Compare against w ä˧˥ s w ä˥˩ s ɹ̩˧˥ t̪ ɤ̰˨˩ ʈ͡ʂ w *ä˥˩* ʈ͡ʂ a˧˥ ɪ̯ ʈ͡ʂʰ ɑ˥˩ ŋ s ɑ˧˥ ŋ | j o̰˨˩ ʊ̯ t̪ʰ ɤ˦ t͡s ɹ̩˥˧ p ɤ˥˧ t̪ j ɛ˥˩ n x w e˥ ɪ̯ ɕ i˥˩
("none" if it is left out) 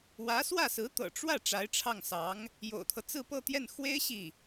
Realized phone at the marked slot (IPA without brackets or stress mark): ä˥˩